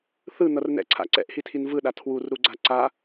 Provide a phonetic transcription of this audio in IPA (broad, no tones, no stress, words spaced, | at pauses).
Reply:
θɯn̪ʌrnɛ̰ǀʰa̰ ǀɛ̰ʔhitʰin vɯɗa tʰwurɾuɡ͡ǀa ǀa